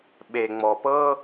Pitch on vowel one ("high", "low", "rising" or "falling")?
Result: low